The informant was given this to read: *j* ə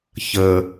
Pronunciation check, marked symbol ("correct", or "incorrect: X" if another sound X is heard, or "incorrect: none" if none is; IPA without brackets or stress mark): incorrect: ç